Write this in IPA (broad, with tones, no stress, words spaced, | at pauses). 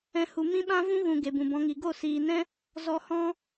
ɛ̃˦hu˧ mĩ˦ɓã˦ vũ˦ɣũ˨ ɡe˨bũ˨bɔ̃˧ŋi˨ ɡo˦˨siː˨nɛ̃˦ | zɔ˧hɔ̃˦